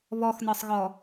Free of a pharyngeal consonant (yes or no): yes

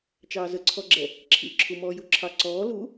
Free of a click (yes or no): no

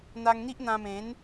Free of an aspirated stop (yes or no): yes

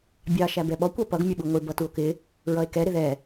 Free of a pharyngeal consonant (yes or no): yes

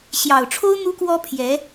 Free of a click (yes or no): yes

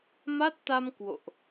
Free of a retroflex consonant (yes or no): yes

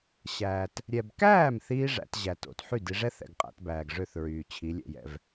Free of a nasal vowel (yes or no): yes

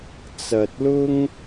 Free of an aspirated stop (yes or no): yes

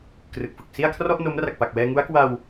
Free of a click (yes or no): yes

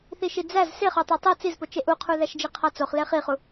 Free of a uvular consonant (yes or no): no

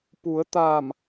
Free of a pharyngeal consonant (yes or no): yes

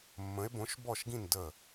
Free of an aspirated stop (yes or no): yes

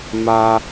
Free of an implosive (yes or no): yes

